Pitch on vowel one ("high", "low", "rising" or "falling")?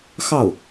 falling